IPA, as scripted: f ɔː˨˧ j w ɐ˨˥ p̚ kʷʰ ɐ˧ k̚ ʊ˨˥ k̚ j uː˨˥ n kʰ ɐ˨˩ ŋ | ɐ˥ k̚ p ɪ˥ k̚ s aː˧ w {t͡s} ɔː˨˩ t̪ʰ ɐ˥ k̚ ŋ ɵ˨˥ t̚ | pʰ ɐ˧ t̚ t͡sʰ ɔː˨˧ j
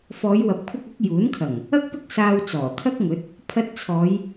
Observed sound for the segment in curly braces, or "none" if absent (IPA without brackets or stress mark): t͡s